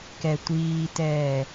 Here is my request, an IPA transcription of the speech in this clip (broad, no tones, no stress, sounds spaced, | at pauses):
k ɛ tʷ iː t ɛː